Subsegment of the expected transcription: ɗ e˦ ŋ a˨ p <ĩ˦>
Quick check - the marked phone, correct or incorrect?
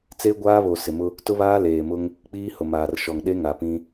correct